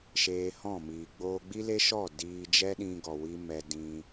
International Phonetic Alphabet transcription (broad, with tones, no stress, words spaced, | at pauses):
ʃeː˧hɔ̃˦˨miː˨ ɡ͡boː˧ɡ͡bi˦le˦ʃɔ˦˨ diː˧ d͡ʒɛ˦ɗĩ˧ɡɔ˨ wi˦mɛ˧dĩ˧